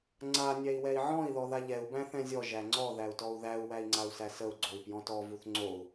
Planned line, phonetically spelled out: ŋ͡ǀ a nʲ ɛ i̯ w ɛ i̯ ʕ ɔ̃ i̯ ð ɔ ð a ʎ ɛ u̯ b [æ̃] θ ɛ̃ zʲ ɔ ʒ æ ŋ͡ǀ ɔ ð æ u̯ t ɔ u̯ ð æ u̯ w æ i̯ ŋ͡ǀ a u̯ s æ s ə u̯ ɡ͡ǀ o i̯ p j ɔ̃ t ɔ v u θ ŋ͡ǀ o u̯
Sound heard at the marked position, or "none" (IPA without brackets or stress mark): æ̃